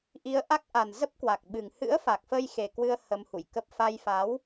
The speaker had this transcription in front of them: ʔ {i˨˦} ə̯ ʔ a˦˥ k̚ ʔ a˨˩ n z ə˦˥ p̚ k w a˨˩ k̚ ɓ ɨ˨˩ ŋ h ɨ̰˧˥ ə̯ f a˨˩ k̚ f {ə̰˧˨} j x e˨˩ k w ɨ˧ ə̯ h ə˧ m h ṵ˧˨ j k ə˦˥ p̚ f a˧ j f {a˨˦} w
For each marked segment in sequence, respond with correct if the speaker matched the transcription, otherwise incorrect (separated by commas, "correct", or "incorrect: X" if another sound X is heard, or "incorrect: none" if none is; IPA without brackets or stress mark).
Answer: correct, incorrect: ə˧, correct